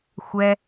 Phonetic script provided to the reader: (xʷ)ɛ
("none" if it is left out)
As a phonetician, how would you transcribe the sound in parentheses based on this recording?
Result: xʷ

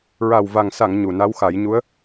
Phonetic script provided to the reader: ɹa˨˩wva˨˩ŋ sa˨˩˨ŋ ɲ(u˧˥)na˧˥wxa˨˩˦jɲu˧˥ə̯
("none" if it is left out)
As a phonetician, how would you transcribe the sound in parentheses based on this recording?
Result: u˨˩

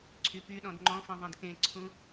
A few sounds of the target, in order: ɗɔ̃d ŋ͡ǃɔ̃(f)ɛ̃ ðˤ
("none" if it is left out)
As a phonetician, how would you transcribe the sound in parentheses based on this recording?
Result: f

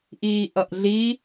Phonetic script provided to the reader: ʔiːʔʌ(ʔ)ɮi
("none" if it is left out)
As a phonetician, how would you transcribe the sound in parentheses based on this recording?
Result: ʔ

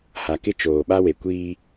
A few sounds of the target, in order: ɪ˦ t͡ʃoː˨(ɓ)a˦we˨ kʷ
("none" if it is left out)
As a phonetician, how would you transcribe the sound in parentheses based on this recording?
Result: ɓ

